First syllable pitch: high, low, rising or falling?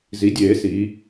rising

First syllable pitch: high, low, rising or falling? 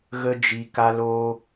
high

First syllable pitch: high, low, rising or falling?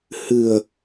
low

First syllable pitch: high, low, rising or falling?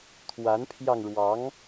rising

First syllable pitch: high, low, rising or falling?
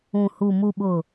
low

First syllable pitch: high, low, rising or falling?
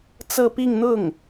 falling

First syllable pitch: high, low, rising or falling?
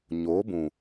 rising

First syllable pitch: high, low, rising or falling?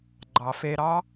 low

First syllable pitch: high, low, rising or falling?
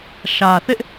low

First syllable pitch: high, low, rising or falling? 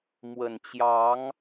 low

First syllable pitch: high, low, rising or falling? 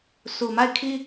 low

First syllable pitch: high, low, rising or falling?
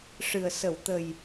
low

